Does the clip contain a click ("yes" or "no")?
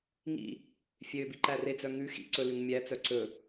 yes